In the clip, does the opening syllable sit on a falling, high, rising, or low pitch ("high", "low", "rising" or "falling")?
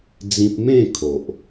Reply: high